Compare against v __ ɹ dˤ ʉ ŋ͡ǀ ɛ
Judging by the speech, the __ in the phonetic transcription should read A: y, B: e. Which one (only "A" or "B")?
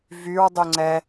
A